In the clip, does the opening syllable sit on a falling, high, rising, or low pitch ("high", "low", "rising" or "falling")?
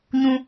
high